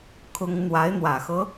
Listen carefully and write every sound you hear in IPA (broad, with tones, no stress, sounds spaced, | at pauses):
kʰ ʊ˥ ŋ n̪ w a˧˥ ɪ̯ n̪ w ä˨˩ x ɤ˦